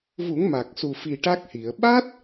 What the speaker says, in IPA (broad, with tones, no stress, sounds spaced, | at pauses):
v u˨˩˦ ŋ m a˨˩ k̚ s u˨˩ f i˨˩ ʈ a˦˥ k̚ h i˨˩˨ ə̯ ɓ a˦˥ t̚